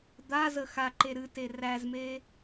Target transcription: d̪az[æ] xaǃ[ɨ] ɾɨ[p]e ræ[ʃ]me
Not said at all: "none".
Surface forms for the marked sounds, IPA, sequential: ə, e, t, z

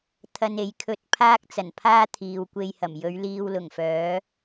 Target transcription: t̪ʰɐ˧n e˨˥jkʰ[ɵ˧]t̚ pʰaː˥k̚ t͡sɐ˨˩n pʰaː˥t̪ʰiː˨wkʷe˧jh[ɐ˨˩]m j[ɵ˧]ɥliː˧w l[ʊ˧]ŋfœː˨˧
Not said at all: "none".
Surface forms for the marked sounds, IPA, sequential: ɵ˧, ɐ˨˩, ɵ˨˧, ʊ˨˩

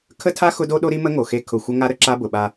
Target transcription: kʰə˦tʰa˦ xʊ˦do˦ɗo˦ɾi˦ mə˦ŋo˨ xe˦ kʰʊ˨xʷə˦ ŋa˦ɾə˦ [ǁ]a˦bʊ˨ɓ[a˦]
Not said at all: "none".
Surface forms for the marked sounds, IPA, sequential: ǁ, a˦

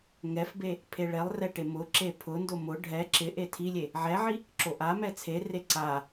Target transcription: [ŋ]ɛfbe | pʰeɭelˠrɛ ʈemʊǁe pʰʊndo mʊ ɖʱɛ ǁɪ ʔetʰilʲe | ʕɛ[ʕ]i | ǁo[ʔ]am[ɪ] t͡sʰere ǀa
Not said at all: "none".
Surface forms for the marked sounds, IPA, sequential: ŋ, ʕ, ʔ, ɛ

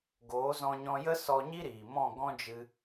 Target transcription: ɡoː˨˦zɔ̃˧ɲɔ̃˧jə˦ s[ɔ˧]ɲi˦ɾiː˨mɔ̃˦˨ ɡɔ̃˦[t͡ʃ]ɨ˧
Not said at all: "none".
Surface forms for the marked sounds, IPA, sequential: ɔ˧, d͡ʒ

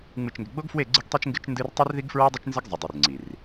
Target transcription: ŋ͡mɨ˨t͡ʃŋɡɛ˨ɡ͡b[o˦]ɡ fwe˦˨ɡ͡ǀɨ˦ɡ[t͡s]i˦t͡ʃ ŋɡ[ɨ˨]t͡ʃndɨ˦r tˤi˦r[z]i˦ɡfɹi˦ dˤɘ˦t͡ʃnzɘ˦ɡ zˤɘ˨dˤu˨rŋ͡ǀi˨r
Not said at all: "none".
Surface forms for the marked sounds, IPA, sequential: o˦, tˤ, ɨ˦, ð

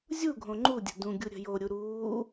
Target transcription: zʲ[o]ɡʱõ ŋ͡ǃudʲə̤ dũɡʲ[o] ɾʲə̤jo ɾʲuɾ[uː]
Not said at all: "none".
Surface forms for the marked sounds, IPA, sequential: u, u, uː

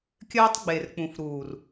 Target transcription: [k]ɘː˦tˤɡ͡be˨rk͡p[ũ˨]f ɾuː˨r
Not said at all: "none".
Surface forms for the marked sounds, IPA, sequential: kʲ, ũ˨

